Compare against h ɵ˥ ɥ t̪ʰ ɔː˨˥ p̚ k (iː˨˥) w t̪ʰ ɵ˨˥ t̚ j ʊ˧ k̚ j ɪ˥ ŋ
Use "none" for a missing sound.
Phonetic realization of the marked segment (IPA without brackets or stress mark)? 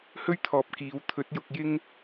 iː˨˧